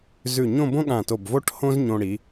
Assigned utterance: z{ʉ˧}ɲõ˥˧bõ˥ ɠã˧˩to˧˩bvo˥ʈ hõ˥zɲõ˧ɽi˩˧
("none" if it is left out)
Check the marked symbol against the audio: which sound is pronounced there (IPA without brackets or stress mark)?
ʉ˧˩